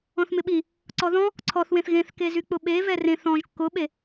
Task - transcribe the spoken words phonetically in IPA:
ɔ̃θmɪɓi | ǀɔðɔ̃ | ǀʰɔθwẽθ ɣẽθkezy k͡pʊɓe vɛrẽθ ɔ̃ʒ kːʊɓe

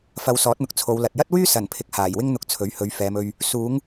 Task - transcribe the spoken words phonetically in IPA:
fɐ˨˧w sɔː˨˥t̚n̪ʊ˨k̚ t͡sʰo˨˧wlɐ˨t̚ jɐ˥t̚wyː˥ sɐ˨˩npʰɪ˨k̚ haː˨˩jwɪ˥ŋn̪ʊ˨˥k̚ t͡sʰɵ˨˥ɥhɵ˨˧ɥfɛː˨˧mɵ˧ɥ | suː˨˧ŋ

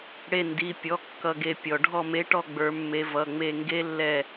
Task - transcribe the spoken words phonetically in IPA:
ɽe˧˩ndi˩˧˩pʲɔ˩˧˩ kːʌ˧˩ɡe˧˩ pʲɔ˩ ɖʱɔ˧˩me˨˦ʈɔ˧˩ ɡ͡bə˞˨˦mːe˨˦vʌ˩˧˩ ŋ͡me˧˩ŋɡe˦˥lːɛ˧˩

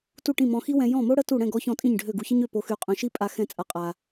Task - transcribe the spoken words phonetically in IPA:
tu˥˩ʈĩ˥˩ mɔ̃˧xi˥wɛ̃˧ jɔ̃˥˩mo˥ ɽə˥tu˥˩ ɽɛ̃˥˩ɡɔ˧ çɔ̃˥˩tʼĩ˥˩ɲɖʱø˥˩ ɡu˧çə˥ɲ ø˥˩po˧ xy˧qʼœ̃˧ʃi˥ pʼa˥ xɛ̃˥˩t͡sʼa˧qʼa˧

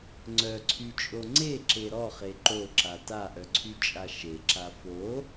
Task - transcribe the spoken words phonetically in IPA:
ŋ͡ǀœǀʰyt͡ʃʼo ŋ͡ǀeǁe ɾɔχe ǃoǁa taʔœǀʰyt͡ʃʼa ʃeǁa fo

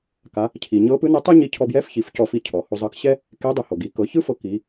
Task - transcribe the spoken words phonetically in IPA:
ka˩˧ | cʰi˩ ɲɤ˧˥pɯ˧˥nɛ˧˥tˤu˥ ɲi˧cʰɔ˧bjɛ˧˥f çi˩˧fcɔ˧fi˧ cʰɔ˩ ho˧ zˤɤ˧kɕɛ˥ | ke˧˥dˤu˩˧ho˩ɡi˩˧ kɤ˩˧ çɯ˥fɤ˧ ki˩˧

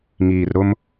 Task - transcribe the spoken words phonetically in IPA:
ŋiː˨rɾʊ˦m

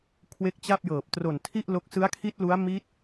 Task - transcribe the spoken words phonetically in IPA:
kʰwe˦˥k̚t͡ɕa˥˩p̚jɤː˨˩p̚ tro˨˩ntʰi˥˩ʔlo˦˥k̚ sɯ˦˥a̯kʰi˦˥t̚lu˦˥a̯ mi˦˥t̚

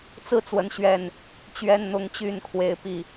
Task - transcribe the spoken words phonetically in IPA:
t͡sɹ̩˥˨t͡swə˨˦nɕɥɛ˨˩n | t͡ɕɥɛ˦nn̪ʊ˦ŋt͡ɕy˥˨n kʰwe˨˦ɪ̯ pi˨˩

